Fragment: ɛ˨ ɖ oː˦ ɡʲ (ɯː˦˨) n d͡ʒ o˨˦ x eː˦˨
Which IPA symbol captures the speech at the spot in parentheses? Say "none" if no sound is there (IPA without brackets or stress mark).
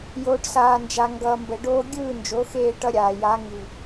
ɯː˦˨